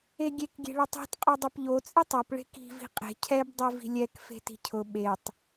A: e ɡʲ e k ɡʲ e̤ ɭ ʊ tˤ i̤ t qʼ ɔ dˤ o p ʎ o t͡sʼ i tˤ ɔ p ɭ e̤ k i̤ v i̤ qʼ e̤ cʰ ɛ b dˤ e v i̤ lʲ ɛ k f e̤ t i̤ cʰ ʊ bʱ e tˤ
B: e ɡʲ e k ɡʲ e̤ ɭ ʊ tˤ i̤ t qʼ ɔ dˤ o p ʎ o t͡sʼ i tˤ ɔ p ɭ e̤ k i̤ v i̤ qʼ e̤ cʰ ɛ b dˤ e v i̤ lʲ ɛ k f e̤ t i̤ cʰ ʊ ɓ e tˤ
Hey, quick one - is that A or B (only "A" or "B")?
B